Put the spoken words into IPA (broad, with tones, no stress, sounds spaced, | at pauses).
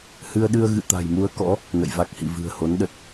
h ɨ˧ ə̯ ɗ ɨ˧ ə̯ ɣ ɨ̰˧˨ t̪ a̤˨˩ j m u˧ ə̯ k ɔ̰˧˥ | n ə̰˧˨ j v a˦˥ k̚ h ḭ˧˨ v ɨ̤˨˩ ə̯ h o˨˦ n ɗ ə˨˩ t̚